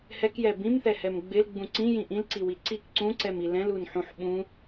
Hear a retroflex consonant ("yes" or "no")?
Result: no